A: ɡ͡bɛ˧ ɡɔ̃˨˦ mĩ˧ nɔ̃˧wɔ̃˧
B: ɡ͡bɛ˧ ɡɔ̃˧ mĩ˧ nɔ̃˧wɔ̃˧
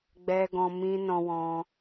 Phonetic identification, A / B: B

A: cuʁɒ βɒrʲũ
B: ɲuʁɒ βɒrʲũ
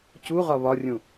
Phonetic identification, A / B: A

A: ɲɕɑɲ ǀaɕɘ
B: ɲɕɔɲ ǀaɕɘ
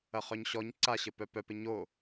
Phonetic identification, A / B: B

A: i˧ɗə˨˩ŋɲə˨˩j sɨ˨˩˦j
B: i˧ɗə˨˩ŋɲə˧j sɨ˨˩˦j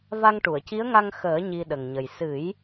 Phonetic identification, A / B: A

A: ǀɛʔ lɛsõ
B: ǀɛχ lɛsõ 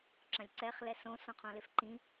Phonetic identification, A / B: B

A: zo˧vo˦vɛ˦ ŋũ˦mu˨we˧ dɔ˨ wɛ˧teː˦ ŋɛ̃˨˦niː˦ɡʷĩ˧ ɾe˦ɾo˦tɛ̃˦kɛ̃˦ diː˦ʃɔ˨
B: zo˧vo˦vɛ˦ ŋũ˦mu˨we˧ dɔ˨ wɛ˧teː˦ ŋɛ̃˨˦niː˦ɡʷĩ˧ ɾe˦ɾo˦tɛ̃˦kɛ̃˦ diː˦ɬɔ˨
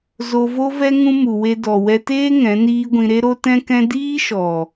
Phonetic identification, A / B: A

